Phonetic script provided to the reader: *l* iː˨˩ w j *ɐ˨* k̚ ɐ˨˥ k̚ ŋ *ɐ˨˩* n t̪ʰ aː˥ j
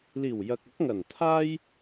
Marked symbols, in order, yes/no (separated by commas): yes, yes, yes